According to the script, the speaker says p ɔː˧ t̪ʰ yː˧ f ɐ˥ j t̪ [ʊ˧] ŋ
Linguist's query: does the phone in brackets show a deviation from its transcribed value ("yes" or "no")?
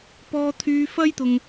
no